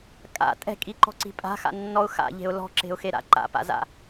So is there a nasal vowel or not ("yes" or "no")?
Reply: no